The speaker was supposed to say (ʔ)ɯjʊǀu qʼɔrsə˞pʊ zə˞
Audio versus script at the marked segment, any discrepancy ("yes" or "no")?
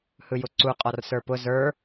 yes